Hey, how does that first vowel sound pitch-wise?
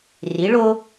rising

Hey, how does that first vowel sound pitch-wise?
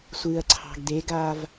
low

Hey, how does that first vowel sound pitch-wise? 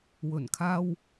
low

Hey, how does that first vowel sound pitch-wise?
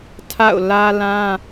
falling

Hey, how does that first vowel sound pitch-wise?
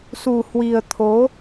low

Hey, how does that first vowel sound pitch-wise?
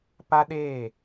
high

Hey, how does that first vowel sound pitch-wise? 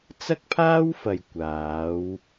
high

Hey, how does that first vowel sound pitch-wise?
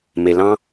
low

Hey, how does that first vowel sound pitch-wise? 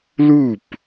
falling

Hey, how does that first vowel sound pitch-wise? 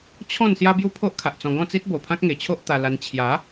falling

